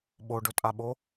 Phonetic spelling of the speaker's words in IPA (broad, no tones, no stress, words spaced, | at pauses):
ɓoɖɵtʼaɓo